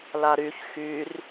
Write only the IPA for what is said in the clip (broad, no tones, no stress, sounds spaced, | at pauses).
l a ɾ y ç x y r